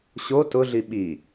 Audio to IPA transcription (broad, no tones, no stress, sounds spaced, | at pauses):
ɕ o t ʊ ɮ i ɓ i